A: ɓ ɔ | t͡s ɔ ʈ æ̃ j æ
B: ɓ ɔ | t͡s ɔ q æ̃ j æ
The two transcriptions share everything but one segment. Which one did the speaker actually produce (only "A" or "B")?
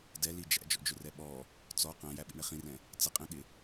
B